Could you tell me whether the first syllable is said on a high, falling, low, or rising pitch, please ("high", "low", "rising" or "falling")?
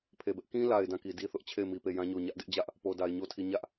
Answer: low